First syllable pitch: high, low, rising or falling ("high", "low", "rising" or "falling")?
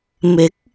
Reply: rising